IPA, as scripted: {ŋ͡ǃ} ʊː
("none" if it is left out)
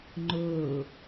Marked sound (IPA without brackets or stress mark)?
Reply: ŋ͡ǃ